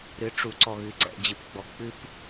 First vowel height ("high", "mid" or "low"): high